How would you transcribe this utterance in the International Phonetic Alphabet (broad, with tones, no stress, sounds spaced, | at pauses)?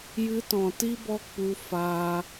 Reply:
j ɨ˧ t ɔ̃˨ t i˦ b ɔ˦ k͡p u˧ f aː˧